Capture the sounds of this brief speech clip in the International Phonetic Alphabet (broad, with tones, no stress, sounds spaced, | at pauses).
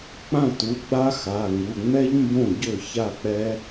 k͡p ã˥˩ t u˩˧˩ ɡ͡b a˦˥ x a˩˧˩ ŋ u˩˧˩ ŋ͡m ɛ˦˥ ʎ m b õ˥˩ ɟ ø˥˩ ç a˥˩ k͡p ɛ˦˥